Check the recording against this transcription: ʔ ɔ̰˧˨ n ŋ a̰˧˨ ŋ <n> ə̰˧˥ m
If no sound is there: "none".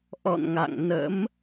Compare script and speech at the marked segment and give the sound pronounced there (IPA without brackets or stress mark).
n